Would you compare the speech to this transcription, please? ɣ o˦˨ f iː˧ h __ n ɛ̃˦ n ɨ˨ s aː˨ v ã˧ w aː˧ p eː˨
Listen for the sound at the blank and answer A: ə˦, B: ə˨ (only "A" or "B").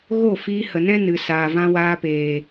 B